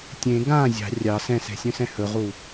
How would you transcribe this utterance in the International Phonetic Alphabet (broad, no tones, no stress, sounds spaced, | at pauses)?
tʲ ẽ ɡ ã zʲ ɑ̤ rʲ ɑ s ɛ̃ s ɛ̤ sʲ œ̃ s ɛ̃ h ɵ ʁ u